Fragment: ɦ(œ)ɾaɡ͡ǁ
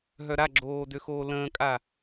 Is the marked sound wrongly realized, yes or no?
no